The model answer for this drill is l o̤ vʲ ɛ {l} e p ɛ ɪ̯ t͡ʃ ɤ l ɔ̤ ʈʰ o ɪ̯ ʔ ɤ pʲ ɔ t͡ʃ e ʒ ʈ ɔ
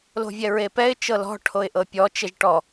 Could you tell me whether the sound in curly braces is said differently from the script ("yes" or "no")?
yes